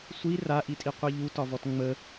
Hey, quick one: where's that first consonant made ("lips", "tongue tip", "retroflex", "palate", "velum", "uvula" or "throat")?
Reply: tongue tip